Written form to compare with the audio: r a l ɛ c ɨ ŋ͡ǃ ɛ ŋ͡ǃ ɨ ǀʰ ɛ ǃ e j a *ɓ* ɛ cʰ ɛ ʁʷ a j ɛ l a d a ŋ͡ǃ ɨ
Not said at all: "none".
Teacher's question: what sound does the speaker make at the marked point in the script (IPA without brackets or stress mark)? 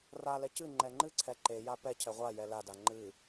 p